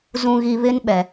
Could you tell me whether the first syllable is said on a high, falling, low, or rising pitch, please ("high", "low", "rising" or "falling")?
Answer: low